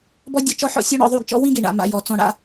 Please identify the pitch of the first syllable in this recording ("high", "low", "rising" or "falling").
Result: high